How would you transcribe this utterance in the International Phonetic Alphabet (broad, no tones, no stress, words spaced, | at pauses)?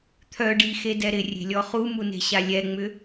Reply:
t̪ʰœ ɖixedɛ ɾɪrʲe̤lʲɔ χumune̤ɕa lʲɛŋ͡mʏ